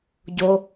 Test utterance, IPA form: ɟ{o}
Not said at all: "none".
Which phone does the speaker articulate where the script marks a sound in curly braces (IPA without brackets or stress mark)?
o